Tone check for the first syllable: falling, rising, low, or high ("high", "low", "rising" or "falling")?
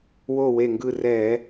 falling